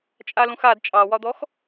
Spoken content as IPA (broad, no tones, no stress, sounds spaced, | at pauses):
t͡ʃʼ a l ũ x a d t͡ʃʼ ɑ w ɒ d̪ ɔ x